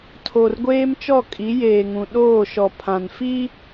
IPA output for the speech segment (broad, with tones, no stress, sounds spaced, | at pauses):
tʰ o˨ r ɡʷ eː˦ m t͡ʃ ɔ˦˨ kʼ i˨˦ j eː˨ ŋ ũ˨ ɗ oː˦˨ ʃ ɔ˨ pʰ ã˨ n f i˦